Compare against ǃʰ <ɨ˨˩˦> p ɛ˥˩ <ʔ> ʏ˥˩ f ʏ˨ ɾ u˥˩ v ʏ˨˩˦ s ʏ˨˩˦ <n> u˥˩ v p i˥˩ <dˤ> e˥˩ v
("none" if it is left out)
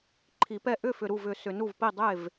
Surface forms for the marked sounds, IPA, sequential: i˨˩˦, ʔ, n, dˤ

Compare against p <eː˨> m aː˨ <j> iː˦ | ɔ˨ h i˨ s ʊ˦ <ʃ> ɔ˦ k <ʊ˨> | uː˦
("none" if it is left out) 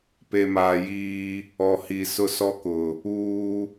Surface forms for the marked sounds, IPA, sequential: e˨, j, s, ʊ˨

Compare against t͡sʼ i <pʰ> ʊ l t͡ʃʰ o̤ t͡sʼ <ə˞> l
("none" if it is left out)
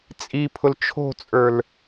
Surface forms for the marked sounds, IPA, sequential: pʰ, ə˞

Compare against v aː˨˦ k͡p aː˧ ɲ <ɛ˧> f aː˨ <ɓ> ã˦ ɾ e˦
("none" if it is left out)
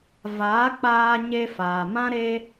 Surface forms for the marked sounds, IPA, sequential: e˧, m

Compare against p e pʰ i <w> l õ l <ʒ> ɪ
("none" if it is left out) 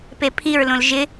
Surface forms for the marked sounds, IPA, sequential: ɹ, ʒ

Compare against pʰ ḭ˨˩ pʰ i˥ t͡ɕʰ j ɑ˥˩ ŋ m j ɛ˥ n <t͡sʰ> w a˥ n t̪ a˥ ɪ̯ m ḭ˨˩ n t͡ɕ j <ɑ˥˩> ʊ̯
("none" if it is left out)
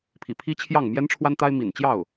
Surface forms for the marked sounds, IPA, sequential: ʈ͡ʂʰ, ɑ˥˩

